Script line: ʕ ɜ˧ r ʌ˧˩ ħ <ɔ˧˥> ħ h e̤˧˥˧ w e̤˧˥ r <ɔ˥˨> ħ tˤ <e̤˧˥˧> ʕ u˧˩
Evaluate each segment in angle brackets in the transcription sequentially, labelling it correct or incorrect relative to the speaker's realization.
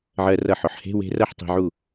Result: incorrect, incorrect, incorrect

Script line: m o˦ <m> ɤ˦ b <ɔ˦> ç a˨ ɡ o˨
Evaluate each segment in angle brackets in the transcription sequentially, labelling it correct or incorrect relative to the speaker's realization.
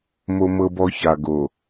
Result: correct, correct

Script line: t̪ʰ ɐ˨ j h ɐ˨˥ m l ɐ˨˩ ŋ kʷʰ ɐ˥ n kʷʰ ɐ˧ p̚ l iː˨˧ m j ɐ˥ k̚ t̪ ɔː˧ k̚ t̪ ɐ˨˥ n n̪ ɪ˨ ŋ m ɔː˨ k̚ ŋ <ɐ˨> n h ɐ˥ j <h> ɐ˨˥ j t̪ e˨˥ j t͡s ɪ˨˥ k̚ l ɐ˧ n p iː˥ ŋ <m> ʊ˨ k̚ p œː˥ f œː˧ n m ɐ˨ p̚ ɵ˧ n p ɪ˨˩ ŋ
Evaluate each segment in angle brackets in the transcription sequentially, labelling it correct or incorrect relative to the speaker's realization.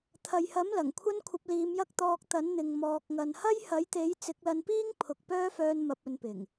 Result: correct, correct, incorrect

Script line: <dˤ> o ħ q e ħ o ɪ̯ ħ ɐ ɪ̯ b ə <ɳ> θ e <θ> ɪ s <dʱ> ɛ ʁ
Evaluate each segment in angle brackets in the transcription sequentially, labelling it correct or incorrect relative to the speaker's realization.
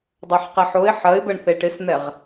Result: correct, correct, incorrect, incorrect

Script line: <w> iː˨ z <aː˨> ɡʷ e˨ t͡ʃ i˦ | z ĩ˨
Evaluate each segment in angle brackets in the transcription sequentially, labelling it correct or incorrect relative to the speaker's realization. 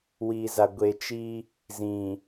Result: correct, incorrect

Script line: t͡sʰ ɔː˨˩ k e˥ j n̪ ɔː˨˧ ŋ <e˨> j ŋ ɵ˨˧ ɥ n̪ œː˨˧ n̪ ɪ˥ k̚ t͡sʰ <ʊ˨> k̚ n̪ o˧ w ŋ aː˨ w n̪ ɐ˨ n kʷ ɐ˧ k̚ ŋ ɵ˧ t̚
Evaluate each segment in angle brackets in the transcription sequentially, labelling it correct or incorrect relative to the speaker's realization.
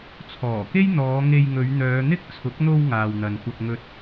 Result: incorrect, incorrect

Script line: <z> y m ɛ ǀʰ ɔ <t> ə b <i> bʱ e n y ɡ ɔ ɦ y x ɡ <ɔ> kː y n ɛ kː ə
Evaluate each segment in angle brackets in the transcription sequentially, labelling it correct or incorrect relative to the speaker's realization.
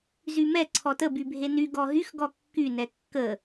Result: correct, correct, incorrect, correct

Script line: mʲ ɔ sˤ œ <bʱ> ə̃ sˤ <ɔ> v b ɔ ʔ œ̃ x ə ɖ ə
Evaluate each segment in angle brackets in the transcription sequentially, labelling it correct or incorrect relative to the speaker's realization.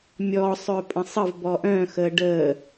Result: incorrect, incorrect

